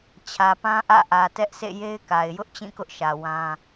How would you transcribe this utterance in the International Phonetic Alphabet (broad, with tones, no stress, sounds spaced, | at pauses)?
t͡ɕʰ ä˨ p ã˦ ʔ ä̰˦˨ ʔ ä˨ t ɛ˦ ʔ sʰ ḛ˦˨ j e˦ ɪ̯ k a˨ ɪ̯ j ʊ˦ ʔ t͡ɕ ĩ˦˨ k ʊ˦ ʔ ʃ ä˨ w ã˦